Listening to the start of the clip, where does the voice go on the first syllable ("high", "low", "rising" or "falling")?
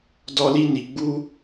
high